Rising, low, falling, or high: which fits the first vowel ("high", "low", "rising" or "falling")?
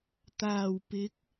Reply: low